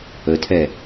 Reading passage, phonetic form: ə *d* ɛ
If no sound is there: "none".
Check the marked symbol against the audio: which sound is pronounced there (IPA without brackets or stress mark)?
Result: tʰ